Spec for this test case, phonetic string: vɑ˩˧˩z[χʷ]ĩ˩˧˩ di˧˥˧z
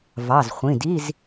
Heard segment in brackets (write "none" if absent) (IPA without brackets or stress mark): χʷ